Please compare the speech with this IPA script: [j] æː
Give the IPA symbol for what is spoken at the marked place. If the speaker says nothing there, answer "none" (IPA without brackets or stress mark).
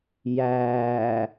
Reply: j